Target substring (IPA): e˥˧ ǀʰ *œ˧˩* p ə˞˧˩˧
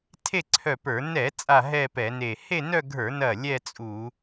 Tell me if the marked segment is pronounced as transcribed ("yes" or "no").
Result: yes